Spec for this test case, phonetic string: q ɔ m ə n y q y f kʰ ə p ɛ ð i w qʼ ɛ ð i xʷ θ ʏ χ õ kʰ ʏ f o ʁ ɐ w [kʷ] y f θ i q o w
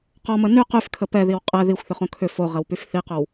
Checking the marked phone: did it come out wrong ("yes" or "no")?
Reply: yes